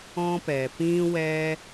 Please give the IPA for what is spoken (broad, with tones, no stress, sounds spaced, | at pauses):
ɔ̃˦ p ɛ˨ p ĩ˦ w ɛ˦